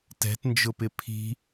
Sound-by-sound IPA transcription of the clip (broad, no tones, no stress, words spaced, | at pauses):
tɛ̤tnd͡ʒʊpɪ pʰi̤